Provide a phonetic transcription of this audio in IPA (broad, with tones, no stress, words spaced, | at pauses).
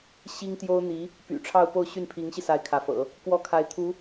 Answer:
ɕi˥ŋt̪jo˥ʊ̯n̪i˧˥ | py̰˨˩ʈ͡ʂʰɑ˥˧ʊ̯po˥˧ʊ̯ ɕy˥˩npʰi˧˥ŋɕi˧sa˧˥ɪ̯ kʰä˧˥fɤ̰˨˩˦ | kwɔ˥˩kʰa˧˥ɪ̯t̪ʰu˧˥